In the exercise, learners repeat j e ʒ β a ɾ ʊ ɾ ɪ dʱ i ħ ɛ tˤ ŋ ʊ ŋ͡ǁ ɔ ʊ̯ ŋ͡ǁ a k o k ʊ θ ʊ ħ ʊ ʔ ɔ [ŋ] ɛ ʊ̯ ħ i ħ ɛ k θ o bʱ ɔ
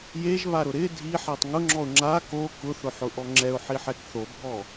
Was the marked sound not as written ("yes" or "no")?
yes